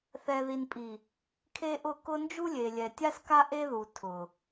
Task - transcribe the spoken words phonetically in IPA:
θɛ˨ði˨npʼi˨ | kʰe˦ʔʊ˦˨ kʊ˦ nd͡ʒu˦lʲe˨ lʲɛ˨tʲa˦ska˦ ʔe˦ðu˨ tʰʊ˨

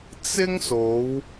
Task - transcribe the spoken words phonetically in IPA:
t͡sɪ˥ŋso˨˧w

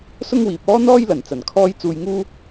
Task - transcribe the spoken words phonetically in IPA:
sʊ˥ŋwiː˨p̚ɔː˥ n̪ɔː˥jlɐ˨˩n t͡sɐ˨˩nkʰɔː˥j t͡suː˧jŋuː˥

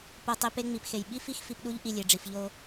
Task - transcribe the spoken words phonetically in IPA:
po˧ tˤi˧pe˦ŋ͡mi˨pxe˨j ɓi˦fi˦x fi˧pɗu˦ʎ ʔi˧lʲe˨ɖ͡ʐi˨f ʎo˧

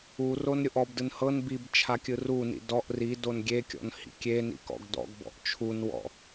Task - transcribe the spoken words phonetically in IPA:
uron ɾʲoʔɔbdɯn hɤn bib t͡ʃʰakʲɯrunḭ dɔʔ ridon ɡʲekʲɔ̰n hḭkʲenḭ kɔ̰ɡdɔ̰ɡbɔ̰ʔ t͡ʃʰunwɔ̰

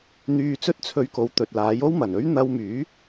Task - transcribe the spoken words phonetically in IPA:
n̪yː˧t͡sɵ˥t̚t͡sʰɵ˧ɥko˨˧w t̪ɵ˨t̚laː˨˥jo˥w mɐ˨˩nɵ˥ɥ n̪ɐ˧wmyː˨˥

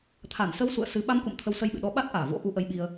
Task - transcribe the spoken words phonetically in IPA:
t̪ʰa˧˩n sə˨˦wsṵ˧˨ə̯ sɨ˨˦ ɓa˧mkṵ˧˨m t̪ʰə˨˦wsə˧jɓɨ̰˧˨ɗɔ˨˦ ɓa˦˥t̚ʔaː˧˩vo̰˧˥ ʔu˨˦ʔə˨˦jɓi˧ə̯

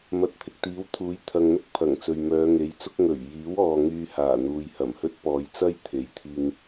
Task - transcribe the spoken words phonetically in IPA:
mɐ˨˥t̚t̪ʰɪ˨k̚t̪iː˨˥w t̪ʰuː˨˥jt̪ʰɐ˨ŋn̪ʊ˥k̚ pʰɐ˨˩ŋ t͡sɵ˨ɥmœː˨˧ŋe˨˥jt͡sʊ˥k̚ ŋɵ˨˩ɥ jiː˨˥wɔː˨ ŋyː˧haː˨˩ n̪uː˨jhɐ˨˩mhɵ˥t̚ pɔː˨˧jt͡sɐ˥j t̪ʰe˨˥jt̪ʰiː˧ŋ

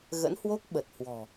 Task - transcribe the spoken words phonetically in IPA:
ɣə̰˧˥nhwo˦˥k̚ ɓə˨˩t̚hwɔ̤˨˩

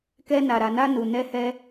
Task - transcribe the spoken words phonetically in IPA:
kɛ˧na˨ɾa˨na˧ nu˨ nɛ˧hɛ˧

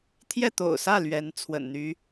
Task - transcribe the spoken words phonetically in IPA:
t̪ʰjɛ˥˩t̪o̰˨˩ʊ̯sä˥˩ lɥɛ˧˥n t͡sʰwə̰˨˩nn̪y˧˥

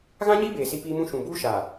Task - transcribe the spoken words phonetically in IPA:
ɣã˦ɲiː˦beː˨ si˦piː˦mũ˦ ʃũ˨buː˦ ʃaː˨

